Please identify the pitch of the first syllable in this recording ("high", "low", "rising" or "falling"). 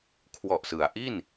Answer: low